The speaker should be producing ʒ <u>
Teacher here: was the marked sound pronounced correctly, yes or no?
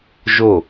no